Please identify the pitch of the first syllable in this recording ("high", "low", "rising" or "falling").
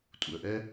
low